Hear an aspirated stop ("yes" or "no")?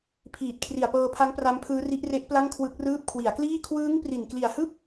yes